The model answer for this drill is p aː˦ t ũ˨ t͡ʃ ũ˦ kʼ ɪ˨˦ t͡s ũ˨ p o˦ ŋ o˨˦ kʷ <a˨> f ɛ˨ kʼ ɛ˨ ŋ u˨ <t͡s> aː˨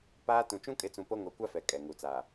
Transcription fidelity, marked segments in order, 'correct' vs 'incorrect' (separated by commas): incorrect, correct